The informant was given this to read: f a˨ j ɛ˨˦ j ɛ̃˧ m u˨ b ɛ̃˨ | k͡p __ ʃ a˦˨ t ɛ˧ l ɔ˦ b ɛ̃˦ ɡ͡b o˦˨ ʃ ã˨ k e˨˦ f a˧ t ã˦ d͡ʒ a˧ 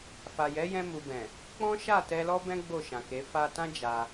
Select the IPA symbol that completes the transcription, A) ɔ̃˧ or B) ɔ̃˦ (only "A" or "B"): B